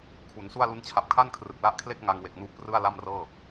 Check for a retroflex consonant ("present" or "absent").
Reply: absent